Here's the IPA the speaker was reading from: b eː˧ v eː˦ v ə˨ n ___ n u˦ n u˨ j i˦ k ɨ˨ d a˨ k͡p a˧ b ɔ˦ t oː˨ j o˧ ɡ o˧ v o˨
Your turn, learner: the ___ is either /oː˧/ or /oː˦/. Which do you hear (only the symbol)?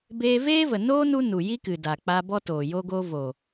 oː˦